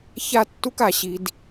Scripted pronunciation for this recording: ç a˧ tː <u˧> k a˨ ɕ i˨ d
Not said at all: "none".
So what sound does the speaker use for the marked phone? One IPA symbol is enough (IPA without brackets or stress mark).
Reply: u˧